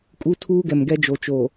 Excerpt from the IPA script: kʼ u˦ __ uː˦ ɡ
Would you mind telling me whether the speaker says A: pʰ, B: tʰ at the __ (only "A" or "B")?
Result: B